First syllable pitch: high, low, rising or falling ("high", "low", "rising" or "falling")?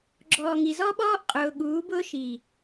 low